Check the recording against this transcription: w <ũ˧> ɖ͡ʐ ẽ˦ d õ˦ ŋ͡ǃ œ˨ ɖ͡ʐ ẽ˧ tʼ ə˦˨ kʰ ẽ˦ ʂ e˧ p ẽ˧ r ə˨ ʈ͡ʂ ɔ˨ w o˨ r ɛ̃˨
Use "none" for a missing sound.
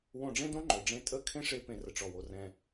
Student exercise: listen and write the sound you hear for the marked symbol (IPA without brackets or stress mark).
õ˧